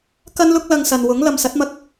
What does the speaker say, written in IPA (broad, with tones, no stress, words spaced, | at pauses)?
kɐ˥nlʊ˥k̚ lɐ˧ŋsɐ˨nwʊ˨˥ŋ lɐ˨msɐ˨˥t̚mɐ˧k̚